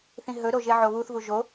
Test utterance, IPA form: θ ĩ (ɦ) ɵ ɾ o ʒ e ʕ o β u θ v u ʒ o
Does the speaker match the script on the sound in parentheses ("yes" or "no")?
yes